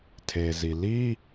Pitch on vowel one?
low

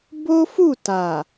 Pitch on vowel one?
high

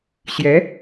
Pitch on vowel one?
rising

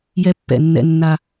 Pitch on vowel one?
high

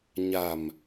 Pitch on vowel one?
low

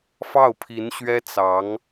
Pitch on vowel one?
falling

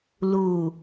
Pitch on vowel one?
low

